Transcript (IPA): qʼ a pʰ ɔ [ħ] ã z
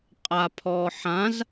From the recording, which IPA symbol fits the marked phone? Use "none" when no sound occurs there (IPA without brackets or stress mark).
ħ